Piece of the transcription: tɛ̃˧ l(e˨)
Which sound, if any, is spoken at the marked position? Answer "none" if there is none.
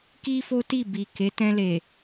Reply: e˨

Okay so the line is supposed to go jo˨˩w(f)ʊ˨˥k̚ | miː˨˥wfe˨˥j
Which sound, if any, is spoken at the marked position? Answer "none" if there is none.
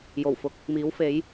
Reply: f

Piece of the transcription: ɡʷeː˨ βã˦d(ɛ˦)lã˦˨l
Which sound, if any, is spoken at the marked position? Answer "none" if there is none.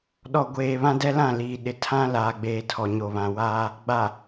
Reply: ɛ˦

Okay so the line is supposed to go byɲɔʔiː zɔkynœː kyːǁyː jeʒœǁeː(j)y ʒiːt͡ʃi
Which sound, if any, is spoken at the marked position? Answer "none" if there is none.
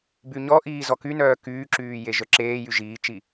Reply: j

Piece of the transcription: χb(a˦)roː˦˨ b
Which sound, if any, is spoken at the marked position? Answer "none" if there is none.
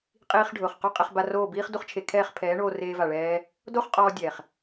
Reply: a˧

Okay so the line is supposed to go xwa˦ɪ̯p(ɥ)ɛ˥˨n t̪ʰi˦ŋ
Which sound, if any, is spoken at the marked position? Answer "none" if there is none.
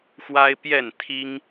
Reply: j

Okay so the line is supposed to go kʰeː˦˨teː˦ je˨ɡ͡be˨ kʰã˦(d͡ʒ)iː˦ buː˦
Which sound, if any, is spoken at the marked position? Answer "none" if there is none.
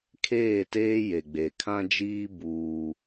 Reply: d͡ʒ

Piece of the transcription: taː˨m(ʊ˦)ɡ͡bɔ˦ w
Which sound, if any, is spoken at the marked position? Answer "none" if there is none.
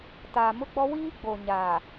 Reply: ʊ˦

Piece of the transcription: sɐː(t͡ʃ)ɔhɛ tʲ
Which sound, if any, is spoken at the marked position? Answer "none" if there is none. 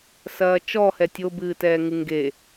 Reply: t͡ʃ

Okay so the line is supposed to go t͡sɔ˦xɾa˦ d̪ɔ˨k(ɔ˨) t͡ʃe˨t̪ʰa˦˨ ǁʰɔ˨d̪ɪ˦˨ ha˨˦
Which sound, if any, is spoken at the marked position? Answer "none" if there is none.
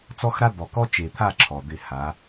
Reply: ɔ˦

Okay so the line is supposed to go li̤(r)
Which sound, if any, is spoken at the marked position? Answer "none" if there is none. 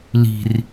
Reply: r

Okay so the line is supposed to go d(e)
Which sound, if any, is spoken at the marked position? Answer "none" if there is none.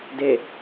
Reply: e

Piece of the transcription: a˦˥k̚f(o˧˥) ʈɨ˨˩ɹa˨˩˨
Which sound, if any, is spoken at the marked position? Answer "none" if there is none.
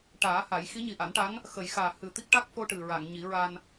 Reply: o˧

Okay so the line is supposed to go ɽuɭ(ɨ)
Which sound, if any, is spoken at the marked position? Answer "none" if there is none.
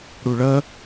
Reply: ə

